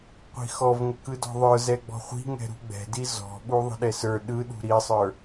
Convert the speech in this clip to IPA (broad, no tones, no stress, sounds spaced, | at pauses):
qʷ i̤ x ɔ v ŋ ə k ɯ d ɔ̤ ðˤ ə˞ z ɛ ɡ͡b ɔ̤ χʷ i̤ ŋ ɛ̤ ɾ ṳ ɡ͡b ɛ̤ d i z ɔ̤ ɓ u ðˤ ə̤ ɗ ɛ s ə˞ ɗ ɯ ɗ ṳ ɾ i sˤ ə˞